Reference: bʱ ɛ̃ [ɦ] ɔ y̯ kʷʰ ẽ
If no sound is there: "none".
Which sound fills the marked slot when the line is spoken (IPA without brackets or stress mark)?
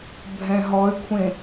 ɦ